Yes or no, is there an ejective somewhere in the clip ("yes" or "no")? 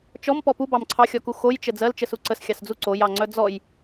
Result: no